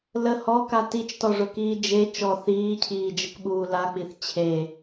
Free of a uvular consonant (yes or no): yes